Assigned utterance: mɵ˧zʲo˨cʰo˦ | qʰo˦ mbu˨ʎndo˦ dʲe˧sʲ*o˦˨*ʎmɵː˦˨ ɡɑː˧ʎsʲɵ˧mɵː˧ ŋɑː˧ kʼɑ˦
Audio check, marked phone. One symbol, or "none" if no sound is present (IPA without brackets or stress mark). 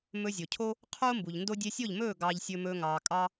o˦˨